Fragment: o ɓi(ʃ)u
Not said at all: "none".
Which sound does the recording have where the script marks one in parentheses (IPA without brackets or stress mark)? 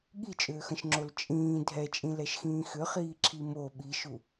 ʃ